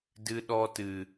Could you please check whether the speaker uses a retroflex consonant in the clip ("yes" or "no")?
no